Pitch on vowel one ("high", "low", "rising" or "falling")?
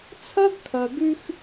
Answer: high